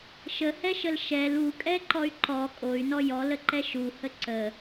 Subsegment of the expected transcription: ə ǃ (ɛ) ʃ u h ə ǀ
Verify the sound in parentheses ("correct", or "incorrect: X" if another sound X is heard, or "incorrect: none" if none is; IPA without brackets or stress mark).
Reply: correct